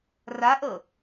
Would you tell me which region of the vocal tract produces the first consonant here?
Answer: tongue tip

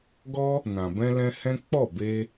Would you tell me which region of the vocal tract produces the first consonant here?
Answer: velum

